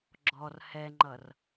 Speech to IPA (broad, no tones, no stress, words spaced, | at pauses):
ɡ͡ǁɔr hɛŋ͡ǃʌr